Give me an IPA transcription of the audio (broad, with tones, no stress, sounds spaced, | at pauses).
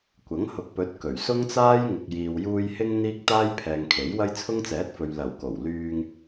kʷ ɐ˨˥ ŋ h ʊ˨ k̚ p ɵ˨˥ t̚ k ɵ˨˩ ɥ s ʊ˥ ŋ t͡s aː˥ j ŋ ʊ˨ k̚ j iː˨ w j uː˧ j h ɪ˥ ŋ n̪ iː˥ k̚ t̪ aː˥ j pʰ ɛː˨ ŋ kʰ e˨˥ j w ɐ˥ j t͡sʰ ʊ˥ ŋ t͡s ɛː˨˥ t̚ f ɵ˨ ɥ l ɐ˨˩ w k o˨˩ w l yː˧ ŋ